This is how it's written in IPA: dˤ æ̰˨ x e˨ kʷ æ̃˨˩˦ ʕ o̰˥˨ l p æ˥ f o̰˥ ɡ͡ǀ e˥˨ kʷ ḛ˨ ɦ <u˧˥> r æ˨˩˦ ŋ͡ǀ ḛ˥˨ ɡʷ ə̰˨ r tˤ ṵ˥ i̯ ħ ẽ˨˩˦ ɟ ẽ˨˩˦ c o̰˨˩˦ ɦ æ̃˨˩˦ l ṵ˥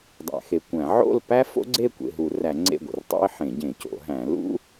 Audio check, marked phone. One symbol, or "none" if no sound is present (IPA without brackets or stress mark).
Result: u˨˩˦